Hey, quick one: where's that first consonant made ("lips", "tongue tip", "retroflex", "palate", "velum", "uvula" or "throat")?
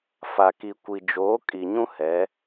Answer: lips